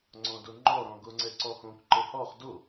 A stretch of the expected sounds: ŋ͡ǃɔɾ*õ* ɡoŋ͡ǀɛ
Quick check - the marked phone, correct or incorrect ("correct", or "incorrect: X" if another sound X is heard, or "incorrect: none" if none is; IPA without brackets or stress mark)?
incorrect: ɔ̃